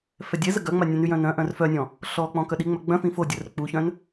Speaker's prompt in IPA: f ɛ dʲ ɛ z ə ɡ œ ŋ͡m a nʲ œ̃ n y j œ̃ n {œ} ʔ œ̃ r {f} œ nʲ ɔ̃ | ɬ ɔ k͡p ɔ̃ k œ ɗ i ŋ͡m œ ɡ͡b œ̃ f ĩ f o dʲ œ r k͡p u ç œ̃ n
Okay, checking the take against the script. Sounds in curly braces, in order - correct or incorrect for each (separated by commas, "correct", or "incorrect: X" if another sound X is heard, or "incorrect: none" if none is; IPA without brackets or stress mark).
incorrect: œ̃, correct